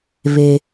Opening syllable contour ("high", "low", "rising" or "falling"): low